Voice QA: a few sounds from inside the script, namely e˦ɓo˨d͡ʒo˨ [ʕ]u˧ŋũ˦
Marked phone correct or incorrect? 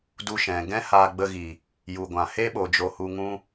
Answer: incorrect